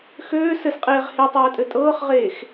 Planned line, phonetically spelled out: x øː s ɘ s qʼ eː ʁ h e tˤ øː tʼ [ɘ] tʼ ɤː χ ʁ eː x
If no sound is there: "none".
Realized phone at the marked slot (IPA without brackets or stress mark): ɘ